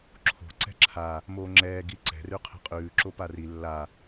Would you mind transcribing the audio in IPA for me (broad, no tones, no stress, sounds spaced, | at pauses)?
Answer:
ǁʰ o̤ ǀ ɛ̤ ǁʰ a | m oː ŋ͡ǁ ɛː ɡ i ǀ ɛ̤ r ʉ qʰ ɛ̤ qʼ ʉː ǁ o p a r i lː a